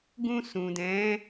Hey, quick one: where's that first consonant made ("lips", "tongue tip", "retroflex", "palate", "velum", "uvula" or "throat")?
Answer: velum